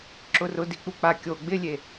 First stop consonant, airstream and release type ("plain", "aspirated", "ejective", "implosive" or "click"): click